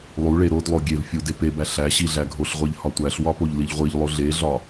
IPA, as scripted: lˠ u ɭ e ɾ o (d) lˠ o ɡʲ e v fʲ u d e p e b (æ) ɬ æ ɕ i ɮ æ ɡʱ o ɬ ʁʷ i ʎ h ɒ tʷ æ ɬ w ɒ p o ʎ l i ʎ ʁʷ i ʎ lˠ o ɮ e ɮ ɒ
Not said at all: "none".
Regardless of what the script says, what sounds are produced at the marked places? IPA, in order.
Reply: d, æ

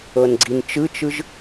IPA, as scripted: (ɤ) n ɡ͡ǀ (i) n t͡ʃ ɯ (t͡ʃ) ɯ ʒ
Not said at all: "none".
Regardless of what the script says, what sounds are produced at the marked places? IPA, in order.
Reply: ɤ, i, t͡ʃ

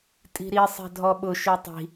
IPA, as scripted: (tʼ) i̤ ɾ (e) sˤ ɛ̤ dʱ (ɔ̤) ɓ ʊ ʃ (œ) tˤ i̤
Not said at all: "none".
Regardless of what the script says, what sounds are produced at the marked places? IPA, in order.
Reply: tʼ, i, ɔ, ø

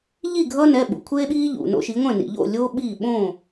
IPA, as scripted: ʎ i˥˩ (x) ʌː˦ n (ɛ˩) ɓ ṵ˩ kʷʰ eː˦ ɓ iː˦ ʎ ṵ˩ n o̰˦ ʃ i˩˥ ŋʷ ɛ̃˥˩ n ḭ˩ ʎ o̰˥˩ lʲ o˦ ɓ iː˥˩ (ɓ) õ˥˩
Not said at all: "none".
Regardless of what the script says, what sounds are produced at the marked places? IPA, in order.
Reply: ɡʱ, ɛ˩˧˩, ɓ

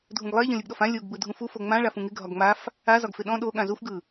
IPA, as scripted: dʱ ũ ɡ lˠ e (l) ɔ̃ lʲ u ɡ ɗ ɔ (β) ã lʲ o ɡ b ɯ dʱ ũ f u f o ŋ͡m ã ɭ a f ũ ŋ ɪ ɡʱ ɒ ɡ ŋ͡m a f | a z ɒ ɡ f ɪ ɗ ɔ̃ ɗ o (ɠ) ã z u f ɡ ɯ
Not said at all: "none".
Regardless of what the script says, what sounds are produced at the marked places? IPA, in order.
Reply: ʎ, f, ɠ

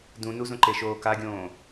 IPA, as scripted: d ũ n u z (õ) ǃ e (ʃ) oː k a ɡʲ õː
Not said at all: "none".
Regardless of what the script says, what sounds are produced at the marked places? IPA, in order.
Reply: õ, ʃ

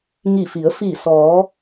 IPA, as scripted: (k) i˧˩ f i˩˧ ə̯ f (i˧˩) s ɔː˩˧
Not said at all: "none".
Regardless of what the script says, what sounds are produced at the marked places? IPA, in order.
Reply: ŋ, i˧˩

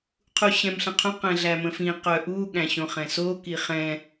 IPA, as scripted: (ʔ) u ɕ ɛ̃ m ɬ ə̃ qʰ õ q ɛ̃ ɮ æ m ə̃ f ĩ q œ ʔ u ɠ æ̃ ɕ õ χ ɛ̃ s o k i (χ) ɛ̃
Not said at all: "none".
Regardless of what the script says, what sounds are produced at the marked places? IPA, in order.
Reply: qʰ, χ

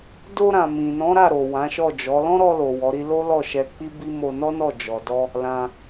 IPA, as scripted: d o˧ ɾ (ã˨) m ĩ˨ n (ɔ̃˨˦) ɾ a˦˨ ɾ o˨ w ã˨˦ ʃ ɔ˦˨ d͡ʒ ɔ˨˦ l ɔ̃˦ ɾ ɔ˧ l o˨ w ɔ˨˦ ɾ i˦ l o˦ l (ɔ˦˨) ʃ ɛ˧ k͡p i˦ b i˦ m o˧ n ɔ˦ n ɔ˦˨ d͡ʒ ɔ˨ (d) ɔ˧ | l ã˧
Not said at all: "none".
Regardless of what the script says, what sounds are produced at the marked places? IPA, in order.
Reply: ã˨, ɔ̃˨˦, ɔ˦˨, d

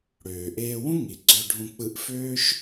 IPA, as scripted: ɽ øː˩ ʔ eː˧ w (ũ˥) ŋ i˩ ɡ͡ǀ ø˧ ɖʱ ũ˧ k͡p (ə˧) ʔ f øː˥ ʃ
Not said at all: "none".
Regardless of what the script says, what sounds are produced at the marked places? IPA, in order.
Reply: ũ˥, ɯ˧

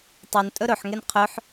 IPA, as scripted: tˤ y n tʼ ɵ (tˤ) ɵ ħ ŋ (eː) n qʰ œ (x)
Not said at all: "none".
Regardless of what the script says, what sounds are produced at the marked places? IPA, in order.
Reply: ɾ, e, ħ

